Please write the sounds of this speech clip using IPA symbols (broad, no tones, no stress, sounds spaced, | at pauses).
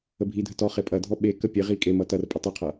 ə bʱ i dʱ ə t ɔ χ e pʼ ɐ dʱ ɔ ɓ e k ə pʲ e ʁ i kʼ e m ʌ t ɐ r pʼ ə tˤ i qʰ ʌ